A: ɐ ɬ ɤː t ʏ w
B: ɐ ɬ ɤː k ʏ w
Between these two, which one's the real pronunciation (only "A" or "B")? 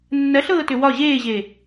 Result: A